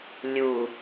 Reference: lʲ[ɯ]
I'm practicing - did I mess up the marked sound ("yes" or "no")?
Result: yes